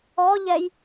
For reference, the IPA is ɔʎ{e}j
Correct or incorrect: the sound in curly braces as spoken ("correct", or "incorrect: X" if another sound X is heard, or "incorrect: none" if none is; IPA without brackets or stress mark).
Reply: incorrect: ɛ